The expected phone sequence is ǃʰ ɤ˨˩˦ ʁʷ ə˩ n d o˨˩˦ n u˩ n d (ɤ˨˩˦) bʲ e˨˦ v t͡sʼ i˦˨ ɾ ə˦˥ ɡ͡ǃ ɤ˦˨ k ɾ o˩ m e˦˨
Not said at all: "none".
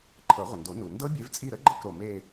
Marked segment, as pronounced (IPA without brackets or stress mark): ɤ˦˥